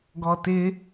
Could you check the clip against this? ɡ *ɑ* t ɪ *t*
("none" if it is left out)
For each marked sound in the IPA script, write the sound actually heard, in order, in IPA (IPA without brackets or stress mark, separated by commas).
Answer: ɔ, none